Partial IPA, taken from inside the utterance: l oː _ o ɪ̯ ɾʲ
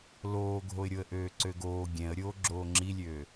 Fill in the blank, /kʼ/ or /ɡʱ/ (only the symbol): ɡʱ